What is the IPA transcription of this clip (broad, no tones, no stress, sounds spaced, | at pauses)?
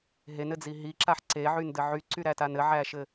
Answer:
ɦ e n ɘ d͡z i ɦ i ǁ a ħ ǀ e ʕ y n d ɘ ʕ y ǀ y ɾ æ t a n ɘ ʕ æ ʃ ɘ